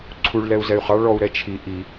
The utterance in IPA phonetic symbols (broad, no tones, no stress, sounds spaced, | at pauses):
ǀʰ u ɭ l ɛ u̯ z ɛ y̯ χ ɑ ɭ ɔ u̯ ɾ ɛ t͡ʃʰ i ʔ i